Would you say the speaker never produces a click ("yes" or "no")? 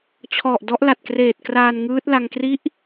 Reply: yes